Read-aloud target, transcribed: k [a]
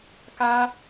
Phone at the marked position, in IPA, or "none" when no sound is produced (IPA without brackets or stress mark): a